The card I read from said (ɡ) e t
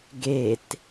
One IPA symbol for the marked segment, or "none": ɡ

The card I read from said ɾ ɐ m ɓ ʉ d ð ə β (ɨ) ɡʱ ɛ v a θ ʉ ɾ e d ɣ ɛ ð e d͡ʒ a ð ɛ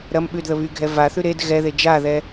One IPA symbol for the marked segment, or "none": y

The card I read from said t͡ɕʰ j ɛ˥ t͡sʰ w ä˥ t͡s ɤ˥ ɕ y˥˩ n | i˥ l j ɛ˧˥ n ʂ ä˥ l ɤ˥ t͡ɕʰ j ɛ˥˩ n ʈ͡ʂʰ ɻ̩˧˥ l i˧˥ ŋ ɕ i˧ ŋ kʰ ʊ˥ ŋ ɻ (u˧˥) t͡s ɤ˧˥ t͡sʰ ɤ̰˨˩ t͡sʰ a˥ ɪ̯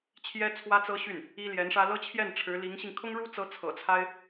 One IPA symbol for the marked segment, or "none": u˥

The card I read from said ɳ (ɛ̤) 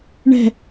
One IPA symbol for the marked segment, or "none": ɛ̤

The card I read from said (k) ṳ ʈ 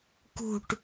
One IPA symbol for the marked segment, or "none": k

